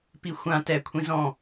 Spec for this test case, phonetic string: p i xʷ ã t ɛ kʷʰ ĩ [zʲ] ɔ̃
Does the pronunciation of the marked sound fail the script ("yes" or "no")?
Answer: yes